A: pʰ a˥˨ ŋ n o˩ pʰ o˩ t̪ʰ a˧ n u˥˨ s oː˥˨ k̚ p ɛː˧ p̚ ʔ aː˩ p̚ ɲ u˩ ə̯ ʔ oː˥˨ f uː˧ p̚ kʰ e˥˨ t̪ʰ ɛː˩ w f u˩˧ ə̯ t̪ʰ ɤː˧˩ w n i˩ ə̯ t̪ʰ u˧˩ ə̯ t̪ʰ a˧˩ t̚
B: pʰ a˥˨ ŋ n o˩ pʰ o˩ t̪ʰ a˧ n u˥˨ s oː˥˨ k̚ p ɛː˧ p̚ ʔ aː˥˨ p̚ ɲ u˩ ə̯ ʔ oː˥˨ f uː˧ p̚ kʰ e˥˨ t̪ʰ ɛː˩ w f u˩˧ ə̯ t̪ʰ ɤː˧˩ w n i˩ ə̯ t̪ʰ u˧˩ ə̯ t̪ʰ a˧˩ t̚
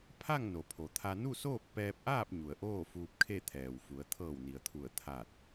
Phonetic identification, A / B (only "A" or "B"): B